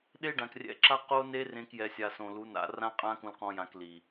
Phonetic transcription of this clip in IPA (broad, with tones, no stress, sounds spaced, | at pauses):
ɗ e˦ ɖ ã˨ k rʲ ɛ̰˧ ǁ a˦ q o˦ n e˦ r ẽ˦ k j ɛ˧ sʲ a˧ s õ˨ l u˨˦ n a̰˧ r ã˦ qʼ ã˦ k ũ˧ l q ɔ̃˧ j ã˧ k l i˨